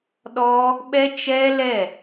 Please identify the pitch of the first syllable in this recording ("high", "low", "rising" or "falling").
high